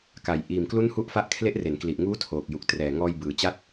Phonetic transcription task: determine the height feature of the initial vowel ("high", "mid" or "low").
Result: low